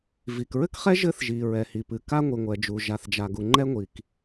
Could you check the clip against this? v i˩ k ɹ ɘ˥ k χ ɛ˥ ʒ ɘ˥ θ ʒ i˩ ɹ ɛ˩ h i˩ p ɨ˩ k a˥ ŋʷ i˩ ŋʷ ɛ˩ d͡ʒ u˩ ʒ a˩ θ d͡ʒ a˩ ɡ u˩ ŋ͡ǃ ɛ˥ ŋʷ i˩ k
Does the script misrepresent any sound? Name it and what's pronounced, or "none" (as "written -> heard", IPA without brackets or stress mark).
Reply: none